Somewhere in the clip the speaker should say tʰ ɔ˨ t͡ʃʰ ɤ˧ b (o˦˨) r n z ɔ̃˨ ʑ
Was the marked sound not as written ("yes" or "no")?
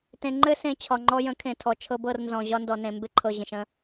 yes